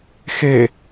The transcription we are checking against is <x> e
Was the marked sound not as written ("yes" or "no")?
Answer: no